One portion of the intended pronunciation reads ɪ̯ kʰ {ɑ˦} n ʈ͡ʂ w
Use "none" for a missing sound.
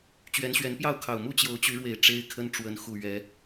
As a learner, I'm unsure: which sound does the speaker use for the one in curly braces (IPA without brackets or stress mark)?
ə˦